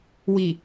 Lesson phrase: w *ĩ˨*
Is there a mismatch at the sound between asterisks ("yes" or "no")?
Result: yes